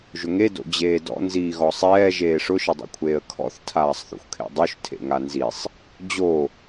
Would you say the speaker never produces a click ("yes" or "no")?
yes